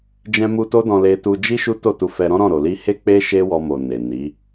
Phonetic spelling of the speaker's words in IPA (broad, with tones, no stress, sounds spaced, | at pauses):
d͡ʒ ɛ̃˧ m u˧ t o˦ d ɔ̃˧ l e˧ t u˧ d͡ʒ i˦ ʃ u˦ t o˦˨ t u˧ f ɛ˧ ɾ ɔ̃˦ ɾ ɔ̃˦˨ ɾ o˨ l i˧ h e˦ k͡p e˦ ʃ e˦ w ɔ˧ m o˨ n e˨ n i˨˦